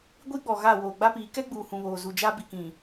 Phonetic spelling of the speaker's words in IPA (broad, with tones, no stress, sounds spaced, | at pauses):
ɡʷ i˦ ɡ͡b ɔ˨ ɣ a˦˨ w oː˨ ɡ͡b a˦ p iː˨˦ k ɛ˦ ɡ͡b uː˨ h ũ˨ β oː˨ z u˨ d͡ʒ a˦ b i˨ k ĩ˨